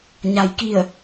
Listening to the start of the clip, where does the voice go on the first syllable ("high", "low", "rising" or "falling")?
low